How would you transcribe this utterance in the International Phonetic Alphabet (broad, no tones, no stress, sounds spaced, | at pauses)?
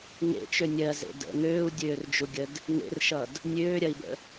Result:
ŋ ḛ t͡ʃ ø nʲ ɜ z ḛ d ə̰ ŋ øː u̯ dʲ øː r d͡ʒ u ɡʲ ə d | ŋ ḛ r ʃ ʌ d | nʲ øː ɾʲ ɐ i̯ b ə̰